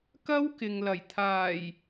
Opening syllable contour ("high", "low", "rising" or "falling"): high